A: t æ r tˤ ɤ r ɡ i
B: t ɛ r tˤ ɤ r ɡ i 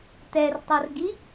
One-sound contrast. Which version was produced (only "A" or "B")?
B